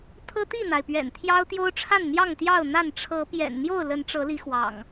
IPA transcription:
t̪ʰ ɤ˦ t̪ i˥˨ n̪ a˩ ɪ̯ p ɥ ɛ̰˨˩ n t̪ʰ j ɑ˦ ʊ̯ t̪ j o˦ ʊ̯ ʈ͡ʂʰ a˥˨ n n̪ j ɑ˥˨ ŋ t̪ j ɑ˥˨ ʊ̯ n̪ a˥˨ n ʈ͡ʂʰ ɤ˨˦ p j ɛ̰˨˩ n n̪ j o˥˨ ʊ̯ l ə˨˦ n ʈ͡ʂ ɤ˨˦ l i˨˦ x w ɑ̰˨˩ ŋ

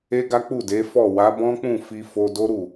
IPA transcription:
e˦ ɡ a˦ k͡p u˦˨ d e˨˦ f ɔ˦˨ w a˨˦ b ɔ̃˦ k͡p ũ˦˨ f i˧ f o˧ d o˦ ɾ u˦˨

